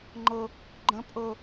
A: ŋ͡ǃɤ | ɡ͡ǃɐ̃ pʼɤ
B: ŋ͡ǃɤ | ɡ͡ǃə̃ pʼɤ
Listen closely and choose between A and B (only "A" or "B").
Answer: B